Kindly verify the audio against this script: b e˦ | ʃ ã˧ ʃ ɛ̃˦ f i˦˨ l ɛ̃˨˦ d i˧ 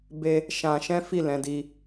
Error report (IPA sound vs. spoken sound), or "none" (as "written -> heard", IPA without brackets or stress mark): none